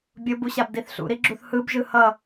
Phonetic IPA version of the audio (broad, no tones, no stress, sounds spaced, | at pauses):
bʲ o b u ɕ a b d i θ ɬ ṵ ɾ i ɡ͡ǁ u θ h ɯ b ʒ ɯ h ʌ